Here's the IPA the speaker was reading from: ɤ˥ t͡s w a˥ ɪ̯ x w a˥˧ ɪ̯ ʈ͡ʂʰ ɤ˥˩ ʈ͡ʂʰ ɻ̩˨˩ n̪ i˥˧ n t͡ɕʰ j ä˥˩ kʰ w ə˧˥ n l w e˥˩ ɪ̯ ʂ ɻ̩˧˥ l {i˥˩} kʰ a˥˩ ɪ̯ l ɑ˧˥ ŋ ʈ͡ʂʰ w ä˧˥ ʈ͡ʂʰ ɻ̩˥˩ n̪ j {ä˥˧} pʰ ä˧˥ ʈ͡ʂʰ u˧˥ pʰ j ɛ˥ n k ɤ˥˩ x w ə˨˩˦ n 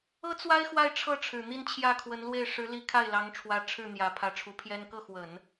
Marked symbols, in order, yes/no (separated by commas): no, no